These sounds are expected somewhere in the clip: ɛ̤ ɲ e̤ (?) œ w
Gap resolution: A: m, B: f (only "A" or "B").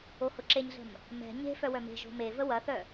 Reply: B